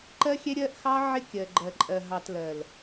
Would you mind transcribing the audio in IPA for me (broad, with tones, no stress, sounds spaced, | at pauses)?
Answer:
ǃ ɜ˦ xʲ ɛ˦ ɾʲ ɜ˦ ʔ x ɑ˦ ʕ ɪ˦ kʲ ɜ˨ ɡ͡ǃ ɜ˨ ǃʼ ɜ˨ ɦ ɑ˨ t l ɜ˨ l